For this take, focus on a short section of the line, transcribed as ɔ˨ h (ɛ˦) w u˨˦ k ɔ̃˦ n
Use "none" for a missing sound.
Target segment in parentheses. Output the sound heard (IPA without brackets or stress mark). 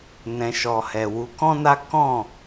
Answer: ɛ˨